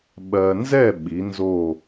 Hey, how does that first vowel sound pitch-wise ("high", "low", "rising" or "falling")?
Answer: low